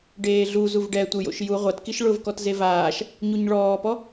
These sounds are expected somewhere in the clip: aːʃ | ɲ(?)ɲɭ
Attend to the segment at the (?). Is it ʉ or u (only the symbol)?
u